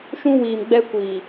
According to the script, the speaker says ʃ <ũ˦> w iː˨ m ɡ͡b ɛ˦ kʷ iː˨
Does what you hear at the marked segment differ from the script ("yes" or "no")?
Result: no